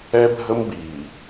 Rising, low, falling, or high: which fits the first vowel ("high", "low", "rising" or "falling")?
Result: high